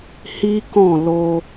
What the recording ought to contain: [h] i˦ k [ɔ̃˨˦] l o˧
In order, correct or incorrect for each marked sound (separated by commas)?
correct, incorrect